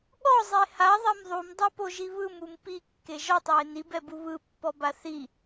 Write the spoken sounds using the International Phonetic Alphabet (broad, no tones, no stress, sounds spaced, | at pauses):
ɠ ɔ zˤ e h a ðˤ ɛ m ðˤ u m dˤ o p o ʒ i β ɯ m u m p i kː e ʒ ɔ tˤ w e n i b ɛ b u β ɯ pː ɔ b a θ i